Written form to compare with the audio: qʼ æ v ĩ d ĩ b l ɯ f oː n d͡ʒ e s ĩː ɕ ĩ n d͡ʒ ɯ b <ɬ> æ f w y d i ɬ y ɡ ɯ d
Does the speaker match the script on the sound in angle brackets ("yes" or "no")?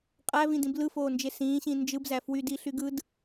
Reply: no